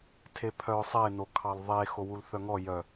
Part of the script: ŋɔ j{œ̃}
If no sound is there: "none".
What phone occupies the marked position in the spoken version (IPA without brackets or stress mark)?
œ